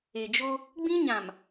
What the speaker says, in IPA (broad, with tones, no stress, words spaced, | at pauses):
e˨d͡ʒo˦ | ɡ͡bĩ˦ɲã˨m